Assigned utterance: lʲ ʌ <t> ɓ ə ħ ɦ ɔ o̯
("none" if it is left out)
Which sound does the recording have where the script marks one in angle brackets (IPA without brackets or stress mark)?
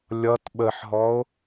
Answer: t